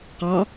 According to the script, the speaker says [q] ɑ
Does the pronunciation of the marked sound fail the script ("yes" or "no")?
no